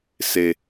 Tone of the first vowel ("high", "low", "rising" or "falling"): high